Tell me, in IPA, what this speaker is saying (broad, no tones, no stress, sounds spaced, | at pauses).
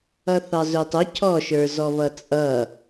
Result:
ʌ θ ɑ z ʊ tˤ ʊ cʰ ɔ ʃ ə˞ z ɔ β ʌ t͡sʼ ʌ